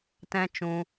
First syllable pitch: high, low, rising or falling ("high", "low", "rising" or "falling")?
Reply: high